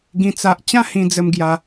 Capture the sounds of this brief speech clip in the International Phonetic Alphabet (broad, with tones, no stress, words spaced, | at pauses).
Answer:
ɡĩ˦t͡sa˦ʔ t͡ɕã˥˧hĩ˧d͡zə˧mɡja˧